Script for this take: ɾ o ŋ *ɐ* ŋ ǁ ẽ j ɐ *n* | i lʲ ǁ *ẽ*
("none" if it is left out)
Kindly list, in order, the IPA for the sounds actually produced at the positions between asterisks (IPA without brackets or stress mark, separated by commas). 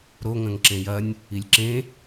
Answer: ɐ̃, nʲ, ẽ